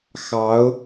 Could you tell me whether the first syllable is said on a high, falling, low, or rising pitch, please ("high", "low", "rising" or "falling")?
rising